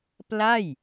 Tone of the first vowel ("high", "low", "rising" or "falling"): falling